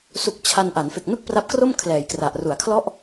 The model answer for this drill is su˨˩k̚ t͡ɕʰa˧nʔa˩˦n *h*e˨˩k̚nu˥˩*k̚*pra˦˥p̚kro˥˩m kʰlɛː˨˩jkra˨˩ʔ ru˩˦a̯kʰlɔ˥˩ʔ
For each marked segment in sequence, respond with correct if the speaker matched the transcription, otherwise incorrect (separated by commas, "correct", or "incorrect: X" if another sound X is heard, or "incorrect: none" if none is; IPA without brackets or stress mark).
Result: incorrect: f, correct